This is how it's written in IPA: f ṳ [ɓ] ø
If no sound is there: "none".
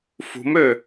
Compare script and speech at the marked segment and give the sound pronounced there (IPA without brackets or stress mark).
m